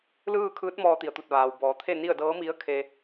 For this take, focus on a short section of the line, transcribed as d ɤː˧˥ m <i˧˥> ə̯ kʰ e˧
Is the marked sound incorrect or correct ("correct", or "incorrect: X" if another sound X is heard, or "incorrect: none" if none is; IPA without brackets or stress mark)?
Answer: correct